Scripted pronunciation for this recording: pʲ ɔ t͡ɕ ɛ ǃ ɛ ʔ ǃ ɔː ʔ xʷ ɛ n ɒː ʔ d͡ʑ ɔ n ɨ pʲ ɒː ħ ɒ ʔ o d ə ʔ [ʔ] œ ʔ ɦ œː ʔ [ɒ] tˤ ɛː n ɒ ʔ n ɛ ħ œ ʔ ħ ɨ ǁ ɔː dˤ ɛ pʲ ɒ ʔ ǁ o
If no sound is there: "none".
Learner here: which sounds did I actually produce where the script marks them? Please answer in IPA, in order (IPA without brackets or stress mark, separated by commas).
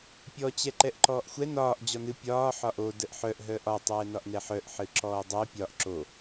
ħ, ɒ